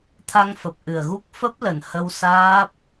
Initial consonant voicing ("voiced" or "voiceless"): voiceless